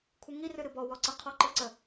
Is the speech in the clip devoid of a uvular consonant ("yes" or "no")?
no